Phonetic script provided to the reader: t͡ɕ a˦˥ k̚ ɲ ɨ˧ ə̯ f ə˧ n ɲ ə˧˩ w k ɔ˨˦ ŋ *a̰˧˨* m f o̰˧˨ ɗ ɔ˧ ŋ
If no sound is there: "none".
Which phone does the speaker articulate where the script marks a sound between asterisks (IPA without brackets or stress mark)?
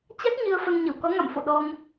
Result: a̰˧˨